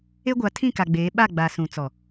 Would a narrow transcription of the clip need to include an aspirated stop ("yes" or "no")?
yes